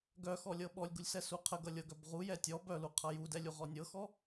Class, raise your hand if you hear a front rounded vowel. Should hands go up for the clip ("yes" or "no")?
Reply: yes